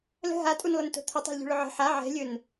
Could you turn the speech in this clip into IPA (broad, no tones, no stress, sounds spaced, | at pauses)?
l ə̤ ɦ a tʼ u n lˠ ə n t o̤ t̪ʰ ʊ tˤ a̤ l ʎ ṳ ɭ ʊ ʕ ə̤ ħ a ʕ ɛ̤ lʲ ɵ n